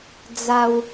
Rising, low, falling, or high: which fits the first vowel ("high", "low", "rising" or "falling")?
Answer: high